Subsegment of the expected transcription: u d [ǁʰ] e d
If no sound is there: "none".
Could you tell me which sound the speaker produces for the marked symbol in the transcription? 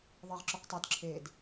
ǁʰ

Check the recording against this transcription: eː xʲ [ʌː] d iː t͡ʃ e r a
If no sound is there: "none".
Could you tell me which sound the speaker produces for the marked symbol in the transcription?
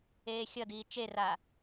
ʌ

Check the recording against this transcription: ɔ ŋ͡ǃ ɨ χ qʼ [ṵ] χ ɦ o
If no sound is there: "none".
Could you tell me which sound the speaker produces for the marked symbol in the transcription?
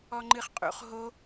ṵ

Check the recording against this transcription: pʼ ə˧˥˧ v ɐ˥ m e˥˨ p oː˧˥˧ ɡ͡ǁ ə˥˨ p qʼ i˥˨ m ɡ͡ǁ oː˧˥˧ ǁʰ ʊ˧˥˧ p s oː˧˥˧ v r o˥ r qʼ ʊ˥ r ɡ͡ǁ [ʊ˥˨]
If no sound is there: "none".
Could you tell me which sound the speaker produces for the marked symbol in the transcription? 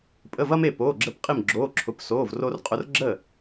ə˥˨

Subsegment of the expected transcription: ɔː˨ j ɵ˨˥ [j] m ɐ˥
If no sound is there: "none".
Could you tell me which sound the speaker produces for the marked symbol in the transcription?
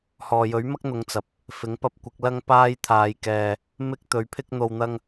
ɥ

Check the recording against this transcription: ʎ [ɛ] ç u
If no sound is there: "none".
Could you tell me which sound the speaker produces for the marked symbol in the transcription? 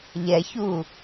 ɛ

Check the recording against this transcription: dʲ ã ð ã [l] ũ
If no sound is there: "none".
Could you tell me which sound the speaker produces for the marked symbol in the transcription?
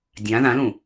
l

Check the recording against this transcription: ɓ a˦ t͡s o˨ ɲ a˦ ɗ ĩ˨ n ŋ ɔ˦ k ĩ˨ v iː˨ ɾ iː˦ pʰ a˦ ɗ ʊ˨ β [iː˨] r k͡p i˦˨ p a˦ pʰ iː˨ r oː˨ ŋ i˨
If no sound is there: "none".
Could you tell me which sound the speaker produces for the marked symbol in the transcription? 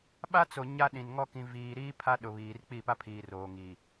iː˨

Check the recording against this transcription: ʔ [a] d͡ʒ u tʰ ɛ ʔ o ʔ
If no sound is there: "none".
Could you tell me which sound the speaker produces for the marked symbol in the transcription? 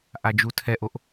a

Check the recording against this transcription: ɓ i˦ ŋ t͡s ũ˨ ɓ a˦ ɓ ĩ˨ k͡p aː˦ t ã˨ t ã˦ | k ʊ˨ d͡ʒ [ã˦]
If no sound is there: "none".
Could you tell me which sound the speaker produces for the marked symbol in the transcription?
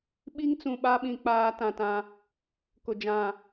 ã˨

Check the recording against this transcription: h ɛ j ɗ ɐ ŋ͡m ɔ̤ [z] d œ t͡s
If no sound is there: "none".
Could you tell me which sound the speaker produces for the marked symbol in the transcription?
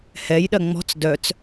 t͡s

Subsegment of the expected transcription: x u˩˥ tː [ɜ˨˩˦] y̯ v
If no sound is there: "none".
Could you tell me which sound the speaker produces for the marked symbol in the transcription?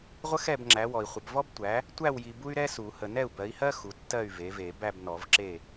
ɜ˥˨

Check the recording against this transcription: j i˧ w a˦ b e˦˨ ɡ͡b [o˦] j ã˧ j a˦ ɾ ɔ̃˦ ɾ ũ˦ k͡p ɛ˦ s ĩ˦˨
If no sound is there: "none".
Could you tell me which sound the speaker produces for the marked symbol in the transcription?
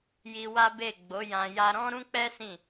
o˨˦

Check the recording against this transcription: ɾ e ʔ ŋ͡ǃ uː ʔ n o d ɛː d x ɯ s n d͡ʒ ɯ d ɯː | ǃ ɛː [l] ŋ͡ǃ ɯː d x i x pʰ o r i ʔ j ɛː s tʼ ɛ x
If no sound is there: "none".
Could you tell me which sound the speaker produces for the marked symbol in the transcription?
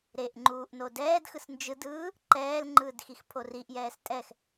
l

